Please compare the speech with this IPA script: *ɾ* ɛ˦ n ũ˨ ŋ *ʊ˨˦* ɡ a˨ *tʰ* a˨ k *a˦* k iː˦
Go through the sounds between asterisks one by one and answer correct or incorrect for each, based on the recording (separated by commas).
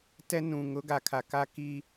incorrect, correct, incorrect, correct